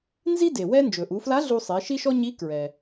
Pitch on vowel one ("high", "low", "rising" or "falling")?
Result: high